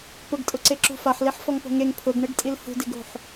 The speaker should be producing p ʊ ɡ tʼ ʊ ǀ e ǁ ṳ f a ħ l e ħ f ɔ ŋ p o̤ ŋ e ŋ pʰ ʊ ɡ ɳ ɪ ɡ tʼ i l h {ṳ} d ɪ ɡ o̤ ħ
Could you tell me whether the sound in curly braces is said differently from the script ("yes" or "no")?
no